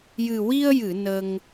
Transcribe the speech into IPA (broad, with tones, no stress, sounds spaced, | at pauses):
j ɨ˨˩ w i˧ ə̯ j ɨ˨˩˨ n ə˧ ŋ